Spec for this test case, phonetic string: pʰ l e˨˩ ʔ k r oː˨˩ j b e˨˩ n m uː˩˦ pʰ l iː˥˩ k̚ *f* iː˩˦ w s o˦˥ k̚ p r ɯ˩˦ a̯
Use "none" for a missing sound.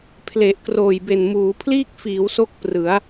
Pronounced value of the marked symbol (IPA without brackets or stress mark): f